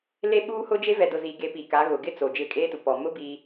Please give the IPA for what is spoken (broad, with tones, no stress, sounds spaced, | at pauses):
l e˦ ɓ uː˦ h ʊ˦ d͡ʒ e˦ v ɛ˨ d ʊ˨ z i˨ ɡ e˨ p i˨ k a˨˦ ɣ ʊ˨ ɡ ɪ˦ t͡s o˨ d͡ʒ ɪ˦˨ kʼ eː˦ t u˨ p ɔ˨ m ʊ˦ b i˦